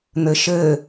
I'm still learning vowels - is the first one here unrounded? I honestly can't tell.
yes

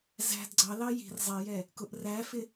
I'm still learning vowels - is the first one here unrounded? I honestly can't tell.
yes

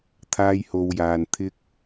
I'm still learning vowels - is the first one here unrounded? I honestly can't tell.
yes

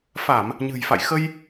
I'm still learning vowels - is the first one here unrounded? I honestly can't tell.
yes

